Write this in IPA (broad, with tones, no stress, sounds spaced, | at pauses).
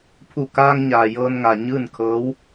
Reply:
pʰ u˧˩ k aː˧ ŋ ɲ aː˩ j ɤː˧ n ŋ a˩ ɲ ɯː˥˨ n kʰ ɤː˧˥ w